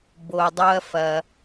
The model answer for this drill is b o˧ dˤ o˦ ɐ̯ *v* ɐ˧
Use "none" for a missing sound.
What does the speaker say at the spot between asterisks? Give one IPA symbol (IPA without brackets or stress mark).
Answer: f